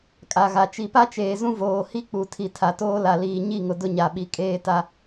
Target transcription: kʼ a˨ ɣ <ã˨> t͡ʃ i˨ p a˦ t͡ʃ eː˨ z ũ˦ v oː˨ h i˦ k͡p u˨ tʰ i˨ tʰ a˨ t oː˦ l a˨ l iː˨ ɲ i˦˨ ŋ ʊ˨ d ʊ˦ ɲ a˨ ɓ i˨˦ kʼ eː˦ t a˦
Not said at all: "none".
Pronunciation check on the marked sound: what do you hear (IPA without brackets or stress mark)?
a˨